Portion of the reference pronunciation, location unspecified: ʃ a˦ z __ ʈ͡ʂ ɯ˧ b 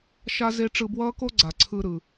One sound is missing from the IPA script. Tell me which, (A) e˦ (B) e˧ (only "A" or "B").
A